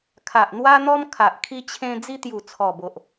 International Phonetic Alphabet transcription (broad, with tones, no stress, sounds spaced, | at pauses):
kʰ a˨ ʔ n̪ w a˦ n̪ ɔ˦ m kʰ a˨ ʔ kʰ i˦ t͡ɕʰ ẽ˦ d͡z i˦ t̪ j u˨˩ t͡sʰ ɔ˨˩ b o˨ ʔ